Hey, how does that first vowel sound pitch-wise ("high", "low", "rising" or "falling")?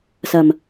low